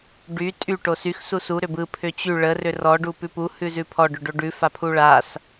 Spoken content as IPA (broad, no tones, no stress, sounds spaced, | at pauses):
ɖ y tʼ y ʈ o s y x s u s u ɾ ʏ b ɯ pʰ ʏ t͡ɕ y ɭ ə r ʏ r ɔ ɖ u p ʉ p u h ʉ z ʉ pʰ ɔ ɖ ʏ ɖ o ɖ ʉ f a pʰ u ɭ a s